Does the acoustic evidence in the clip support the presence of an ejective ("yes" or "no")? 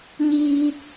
no